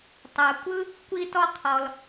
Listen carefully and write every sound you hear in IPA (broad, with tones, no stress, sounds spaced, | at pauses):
tˤ a˩ kʷ ɯ˦ | kʷ i˦ t ɔ˦ qʰ ɔ˩ l